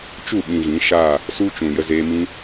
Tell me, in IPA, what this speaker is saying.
t͡ʃ u˦˨ ɓ ĩ˨ ɣ ĩ˨˦ ʃ a˦˨ | s u˦ t͡ʃ ũ˨ j ə˧ z eː˧ m ĩ˦

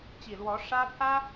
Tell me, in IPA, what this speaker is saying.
t͡ɕ i˨˩ l w ɔ˧˥ ʂ ä˥ pʰ ä˥

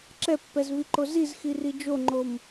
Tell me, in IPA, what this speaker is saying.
ǁ ɛ pː ɛ z v i ǃ o z i z x i r i d͡ʒ o ŋ͡ǃ o m

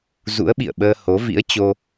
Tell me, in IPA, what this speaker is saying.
z ṵ˧˥ ə̯ ɓ ḭ˧˨ ə̯ ɓ əː˧ h o˨˦ v ḭ˧˥ ə̯ t͡ɕ o˧

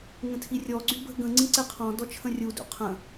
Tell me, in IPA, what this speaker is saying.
ŋ ə̃ tʰ i rʲ ɔ ɡ͡ǀ y b ə̤ ɡ ə̃ ŋ͡ǀ ĩ ǀ e qʰ ɔ̃ d ɔ t͡ʃʰ ə̃ rʲ u d ṵ qʰ ə̃

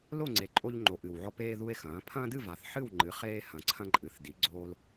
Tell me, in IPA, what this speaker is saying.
l o˥˨ ŋ͡ǀ e˨˩ ǃʼ o˦ ʎ ŋ͡ǃ o˨˩ ʔ ɨ˨˩ w ʕ ɔ˦ p eː˦ ð u˦ e̯ x ɐ̃ː˩˥ pʰ ɐ̃ː˦ d ɨ˥˨ v a˨˩ θ ħ ɨ˥˨ w ŋ͡ǃ ɨ˩˥ χ eː˦ h ɐ̃˨˩ ǀʰ ɐ̃˦ ǃʼ ɨ˨˩ θ d i˩˥ ɡ͡ǀ oː˦ l

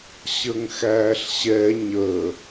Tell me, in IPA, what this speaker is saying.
ɕ ə ŋ x æː ɬ ɕ ɛ ɲ ə

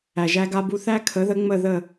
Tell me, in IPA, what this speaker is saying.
æ˩ ʒ æ˧ ɡ a˧ b u˧ θ æ˥ kʰ ə˩˥ ð ə˩˥ ŋ͡m ə˧˩ ð ə˧˩

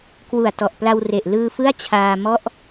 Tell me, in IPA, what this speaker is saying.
k w u˨˩ a̯ t ɔ˨˩ ʔ p l a˧ w r e˨˩ ʔ l ɯː˧ f ɯ˥˩ a̯ t͡ɕʰ aː˧ m ɔ˥˩ ʔ

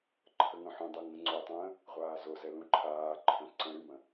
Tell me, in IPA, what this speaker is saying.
ǃʰ ə ŋ œ̃ ħ ũ dˤ u ŋ ə̃ ŋ͡ǀ o tˤ ə̃ː | ʁʷ aː z o z ɛ l ũ ǃʰ aː ǃʰ œ̃ ǀ ə̃ ɾ y m ə̃

